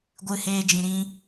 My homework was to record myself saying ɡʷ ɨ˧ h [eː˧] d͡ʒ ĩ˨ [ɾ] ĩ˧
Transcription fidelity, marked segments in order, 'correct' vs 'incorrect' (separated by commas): correct, correct